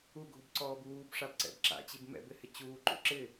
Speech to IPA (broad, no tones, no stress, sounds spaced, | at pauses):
u ɡʱ u b ǀ ɔː b uː b ʂ a b ǀ ɛ̰ b ǁ a̰ t͡ɕ i b m ɛ̰ b ɪ h ɪ t͡ɕ uː ǃ ṵ ǁ ɪ